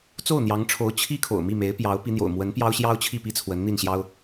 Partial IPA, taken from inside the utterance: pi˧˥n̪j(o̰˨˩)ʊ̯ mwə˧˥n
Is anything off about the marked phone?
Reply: no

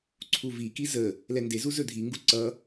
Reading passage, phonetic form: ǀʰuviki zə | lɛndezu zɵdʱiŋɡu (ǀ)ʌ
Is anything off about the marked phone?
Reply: no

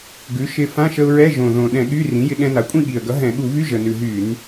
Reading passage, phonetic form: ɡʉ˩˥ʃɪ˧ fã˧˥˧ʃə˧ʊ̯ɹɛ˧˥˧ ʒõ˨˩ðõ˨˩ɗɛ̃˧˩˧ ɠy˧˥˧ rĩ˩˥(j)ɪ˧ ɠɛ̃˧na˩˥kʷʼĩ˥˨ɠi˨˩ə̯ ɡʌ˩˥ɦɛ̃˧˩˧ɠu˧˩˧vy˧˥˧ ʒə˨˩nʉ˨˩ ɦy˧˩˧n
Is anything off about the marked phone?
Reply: no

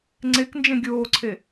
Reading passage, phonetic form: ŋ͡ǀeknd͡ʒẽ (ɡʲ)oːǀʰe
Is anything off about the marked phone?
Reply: no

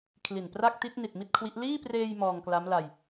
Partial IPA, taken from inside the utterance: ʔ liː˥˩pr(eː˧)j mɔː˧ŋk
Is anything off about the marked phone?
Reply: no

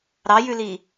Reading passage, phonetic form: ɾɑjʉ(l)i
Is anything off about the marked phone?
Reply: no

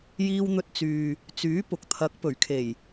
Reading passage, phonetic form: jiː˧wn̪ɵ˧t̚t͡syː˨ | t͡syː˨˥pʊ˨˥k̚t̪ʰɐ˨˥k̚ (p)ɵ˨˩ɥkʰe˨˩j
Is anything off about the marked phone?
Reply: no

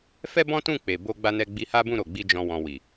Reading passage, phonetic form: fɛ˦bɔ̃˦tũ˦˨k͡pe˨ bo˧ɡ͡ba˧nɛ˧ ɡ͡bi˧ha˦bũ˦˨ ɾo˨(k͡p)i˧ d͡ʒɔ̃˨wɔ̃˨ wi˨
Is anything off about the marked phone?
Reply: yes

